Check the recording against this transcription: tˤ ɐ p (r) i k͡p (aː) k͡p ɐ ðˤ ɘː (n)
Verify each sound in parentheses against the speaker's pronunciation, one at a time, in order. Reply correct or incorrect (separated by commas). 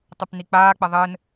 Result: incorrect, correct, correct